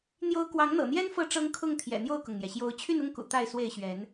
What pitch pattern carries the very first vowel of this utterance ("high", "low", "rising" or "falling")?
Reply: high